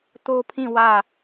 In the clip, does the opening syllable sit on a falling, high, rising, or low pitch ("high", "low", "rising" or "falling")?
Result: high